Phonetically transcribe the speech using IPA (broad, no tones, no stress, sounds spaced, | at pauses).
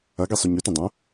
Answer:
ɐ ɡ i sˤ ʉ ɲ ʉ t ɐ̃ dˤ ɐ̃